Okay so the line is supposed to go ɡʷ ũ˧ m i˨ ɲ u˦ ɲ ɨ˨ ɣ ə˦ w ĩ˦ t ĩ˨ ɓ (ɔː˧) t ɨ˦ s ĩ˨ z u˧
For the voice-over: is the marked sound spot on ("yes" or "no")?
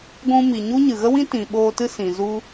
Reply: no